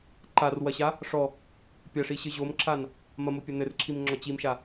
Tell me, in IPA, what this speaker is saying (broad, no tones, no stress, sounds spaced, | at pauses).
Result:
ǃ a r w ɐ ɕ a | ʂ ɔ | pʲ ɐ ʂ i ɕ ɘ ʑ o m ǁ a n | m ɐ m o pʲ ɐ n ɘ r ǁʰ i m ŋ͡ǁ ɔ t͡ɕ i m ʃ a